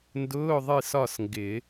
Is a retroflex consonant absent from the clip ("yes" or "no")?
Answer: yes